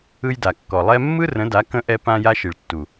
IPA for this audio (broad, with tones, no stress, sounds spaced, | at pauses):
ɯ˧ j d a˨ kː ɔ˨ lˠ ɛ˧ mː ɯ˦ r ə̃˨˦ d a˨˦ k ə̃˧ ʔ ɛ˧ p ã˧ j a˧ ʃ i˨ ɭ tː u˨